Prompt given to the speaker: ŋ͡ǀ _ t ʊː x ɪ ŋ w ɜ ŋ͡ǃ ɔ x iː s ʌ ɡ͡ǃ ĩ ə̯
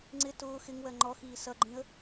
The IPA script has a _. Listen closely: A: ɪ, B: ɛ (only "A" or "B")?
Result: A